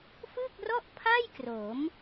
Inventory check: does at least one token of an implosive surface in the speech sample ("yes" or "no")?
no